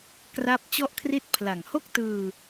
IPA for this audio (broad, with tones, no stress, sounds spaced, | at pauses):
k r a˥˩ p̚ t͡ɕ ɔ˥˩ ʔ kʰ r i˥˩ t̚ pʰ l a˨˩ ŋ h o˥˩ k̚ t ɯː˧